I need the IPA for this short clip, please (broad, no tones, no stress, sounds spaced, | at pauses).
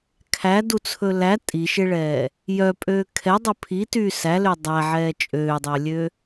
kʰ æ d u t͡sʰ ɵ l æ tʼ i ʃ e ɭ ɛː | j œ pʼ øː kʰ ɛ dˤ ɵ pʰ i t yː s æ l ø dˤ æ ʕ ɛː t͡ʃʼ øː dˤ ɵː lʲ ø